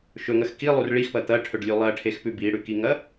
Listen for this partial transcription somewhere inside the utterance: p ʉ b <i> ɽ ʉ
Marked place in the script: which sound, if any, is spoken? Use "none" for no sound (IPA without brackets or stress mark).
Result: i